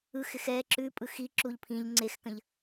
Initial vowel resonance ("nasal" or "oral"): oral